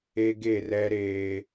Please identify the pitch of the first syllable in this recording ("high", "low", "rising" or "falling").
high